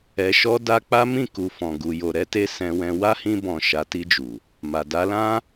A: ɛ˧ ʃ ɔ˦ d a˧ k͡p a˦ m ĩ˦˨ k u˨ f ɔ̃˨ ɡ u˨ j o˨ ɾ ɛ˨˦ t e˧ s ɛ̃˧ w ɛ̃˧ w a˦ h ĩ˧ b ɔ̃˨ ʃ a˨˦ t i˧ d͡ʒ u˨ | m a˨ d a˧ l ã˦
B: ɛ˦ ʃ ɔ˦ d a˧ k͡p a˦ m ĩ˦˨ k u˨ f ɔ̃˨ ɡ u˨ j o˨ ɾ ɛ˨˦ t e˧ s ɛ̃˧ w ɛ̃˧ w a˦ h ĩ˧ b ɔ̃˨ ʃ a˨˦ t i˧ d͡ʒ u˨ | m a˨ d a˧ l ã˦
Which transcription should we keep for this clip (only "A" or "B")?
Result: A